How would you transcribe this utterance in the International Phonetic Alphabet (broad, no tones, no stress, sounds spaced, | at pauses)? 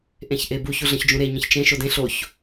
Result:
ʔ ẽ ç ʔ e b u ç u ɮ ə̃ ç d͡ʒ ũ ɾ e ɲ ə̃ ç t͡ʃ ẽ ʃ o d ẽ ɬ o ç